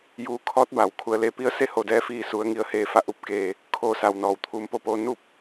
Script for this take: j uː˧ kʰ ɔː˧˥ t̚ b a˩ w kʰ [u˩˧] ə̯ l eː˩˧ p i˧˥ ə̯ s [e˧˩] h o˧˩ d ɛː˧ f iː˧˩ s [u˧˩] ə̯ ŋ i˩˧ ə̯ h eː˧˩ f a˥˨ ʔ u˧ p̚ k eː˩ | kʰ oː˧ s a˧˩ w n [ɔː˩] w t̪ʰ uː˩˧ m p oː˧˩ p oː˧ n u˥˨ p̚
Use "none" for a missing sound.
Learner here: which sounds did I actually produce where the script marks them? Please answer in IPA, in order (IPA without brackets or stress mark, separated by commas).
u˩˧, e˥˨, u˩˧, ɔː˩